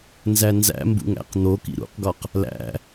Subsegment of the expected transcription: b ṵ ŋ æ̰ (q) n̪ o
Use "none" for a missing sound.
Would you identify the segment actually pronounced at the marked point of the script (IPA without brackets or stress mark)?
q